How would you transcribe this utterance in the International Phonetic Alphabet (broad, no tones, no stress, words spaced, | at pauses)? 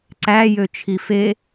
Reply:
ǀæjøt͡ʃʰi fe